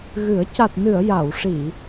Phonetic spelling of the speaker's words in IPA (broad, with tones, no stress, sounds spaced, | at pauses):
ɣ ɨ˨˩˦ ə̯ c a˨˩ t̚ n ɨ˨˩˨ ə̯ j a˨˩˨ w ʂ i˨˩˨